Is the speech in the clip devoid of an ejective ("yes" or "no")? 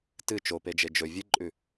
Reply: no